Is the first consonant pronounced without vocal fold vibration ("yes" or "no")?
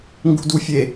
no